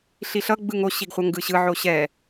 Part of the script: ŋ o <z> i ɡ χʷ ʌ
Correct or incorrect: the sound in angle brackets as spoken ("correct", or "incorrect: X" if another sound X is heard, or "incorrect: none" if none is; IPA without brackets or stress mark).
incorrect: ɕ